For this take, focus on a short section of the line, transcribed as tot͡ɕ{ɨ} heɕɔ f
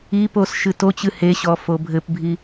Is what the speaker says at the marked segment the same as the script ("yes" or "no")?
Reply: yes